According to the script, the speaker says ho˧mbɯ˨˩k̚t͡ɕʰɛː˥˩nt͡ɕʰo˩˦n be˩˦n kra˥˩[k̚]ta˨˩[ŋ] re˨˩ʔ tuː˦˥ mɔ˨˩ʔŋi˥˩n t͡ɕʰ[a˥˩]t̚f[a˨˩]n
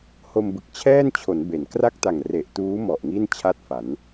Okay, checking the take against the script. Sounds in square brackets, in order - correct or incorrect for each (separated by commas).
correct, correct, correct, incorrect